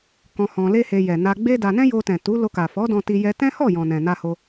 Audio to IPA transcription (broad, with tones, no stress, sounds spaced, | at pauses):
k ɔ̃˧ h ɔ̃˧ l e˦ h e˧ j ɛ˨ n a˧ ɡ͡b e˦ d a˧ n ɛ̃˦ j o˧ t ɛ̃˨ t u˨˦ l o˧ k a˨ f ɔ˨˦ d ɔ̃˧ t i˧ j ɛ˧ t ɛ̃˦ h ɔ˦˨ j ɔ̃˨ n ɛ̃˨ n a˧ h o˧